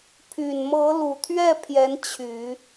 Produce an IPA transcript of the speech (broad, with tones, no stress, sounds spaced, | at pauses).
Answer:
pʰ y˨˩ n m ɤ˧˥ l u˨˩ t̪ʰ ɥ ɛ˥˩ pʰ j ɛ˧˥ n t͡ɕʰ y˨˩˦